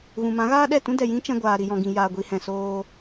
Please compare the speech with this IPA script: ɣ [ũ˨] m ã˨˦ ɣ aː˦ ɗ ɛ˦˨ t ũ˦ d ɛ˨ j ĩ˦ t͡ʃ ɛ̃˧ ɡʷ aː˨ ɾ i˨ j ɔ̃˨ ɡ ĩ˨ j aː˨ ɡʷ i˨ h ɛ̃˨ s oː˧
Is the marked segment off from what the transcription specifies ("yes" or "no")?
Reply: no